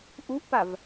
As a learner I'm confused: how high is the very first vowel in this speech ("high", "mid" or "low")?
high